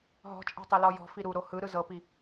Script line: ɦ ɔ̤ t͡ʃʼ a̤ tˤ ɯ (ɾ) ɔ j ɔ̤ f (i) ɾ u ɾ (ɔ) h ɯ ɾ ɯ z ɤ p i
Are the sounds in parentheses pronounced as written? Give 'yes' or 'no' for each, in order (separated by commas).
no, yes, no